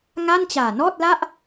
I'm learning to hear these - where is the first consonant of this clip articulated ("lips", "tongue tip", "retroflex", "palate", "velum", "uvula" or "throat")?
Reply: velum